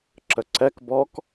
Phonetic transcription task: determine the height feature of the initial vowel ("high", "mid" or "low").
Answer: mid